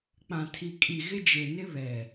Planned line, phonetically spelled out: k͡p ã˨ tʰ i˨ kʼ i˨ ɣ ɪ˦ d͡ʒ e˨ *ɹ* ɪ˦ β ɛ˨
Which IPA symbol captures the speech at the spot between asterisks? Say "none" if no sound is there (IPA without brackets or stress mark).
n